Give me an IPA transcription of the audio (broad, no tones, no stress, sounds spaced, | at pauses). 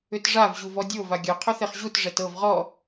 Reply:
ʏ t ʐ a v ʑ u v ɔ dʲ o v a ɡʲ œ qʰ ʏ θ e χ ʑ u t ʐ ɛ t ɤ v ʁ ɔ